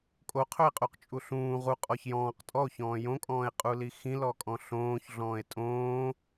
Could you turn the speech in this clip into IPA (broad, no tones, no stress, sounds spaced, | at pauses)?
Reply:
kʼ o qʰ ɵ e̯ qʼ u q t͡ʃʼ u ɬ ũː ʁ u qʼ ɔ ç j ɔ̃ː q tʼ ɔ o̯ ç ɔ̃ː j õ kʼ ɔ̃ː e̯ qʼ u l i x ĩ l ɔ kʼ ɔ̃ ɬ õː ç ɮ ɔ̃ː e̯ tʼ õː